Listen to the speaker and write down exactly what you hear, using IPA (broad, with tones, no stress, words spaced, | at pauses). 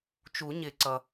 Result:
t͡ʃu˨˩˦ɲɪ˨˩˦ ǀʌ˩